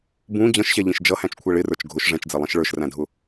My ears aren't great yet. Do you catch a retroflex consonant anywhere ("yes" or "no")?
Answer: yes